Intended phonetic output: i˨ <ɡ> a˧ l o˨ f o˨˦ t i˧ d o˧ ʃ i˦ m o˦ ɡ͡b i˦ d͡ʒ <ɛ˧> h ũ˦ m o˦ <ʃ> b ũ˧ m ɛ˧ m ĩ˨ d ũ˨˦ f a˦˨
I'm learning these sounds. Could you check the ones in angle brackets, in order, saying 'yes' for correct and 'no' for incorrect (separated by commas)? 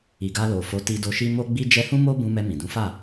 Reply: yes, yes, no